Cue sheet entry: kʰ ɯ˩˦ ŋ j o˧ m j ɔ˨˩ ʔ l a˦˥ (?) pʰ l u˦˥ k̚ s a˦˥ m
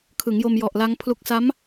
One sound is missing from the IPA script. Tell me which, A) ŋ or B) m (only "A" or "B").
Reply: A